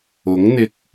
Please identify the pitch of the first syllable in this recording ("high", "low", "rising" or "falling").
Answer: rising